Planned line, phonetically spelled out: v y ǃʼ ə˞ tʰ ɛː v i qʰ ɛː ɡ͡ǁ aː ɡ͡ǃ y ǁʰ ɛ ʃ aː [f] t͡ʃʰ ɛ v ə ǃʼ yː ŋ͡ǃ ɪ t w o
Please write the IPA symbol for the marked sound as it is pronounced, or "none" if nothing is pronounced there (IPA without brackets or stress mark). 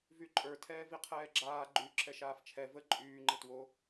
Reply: f